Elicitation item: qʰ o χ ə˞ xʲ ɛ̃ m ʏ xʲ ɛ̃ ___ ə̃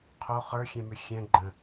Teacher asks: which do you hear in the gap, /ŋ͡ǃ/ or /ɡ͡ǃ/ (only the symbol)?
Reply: ɡ͡ǃ